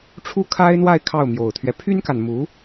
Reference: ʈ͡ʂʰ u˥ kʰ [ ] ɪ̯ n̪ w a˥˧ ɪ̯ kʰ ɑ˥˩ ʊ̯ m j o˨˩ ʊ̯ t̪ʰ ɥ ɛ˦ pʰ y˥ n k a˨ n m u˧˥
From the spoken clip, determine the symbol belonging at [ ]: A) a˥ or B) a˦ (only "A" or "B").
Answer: A